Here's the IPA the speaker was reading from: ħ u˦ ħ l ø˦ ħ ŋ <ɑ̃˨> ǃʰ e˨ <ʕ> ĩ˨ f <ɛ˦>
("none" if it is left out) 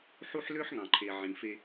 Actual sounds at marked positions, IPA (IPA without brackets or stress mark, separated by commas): ɑ̃˨, ʕ, e˦